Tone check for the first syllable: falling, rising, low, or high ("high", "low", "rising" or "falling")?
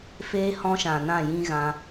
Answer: high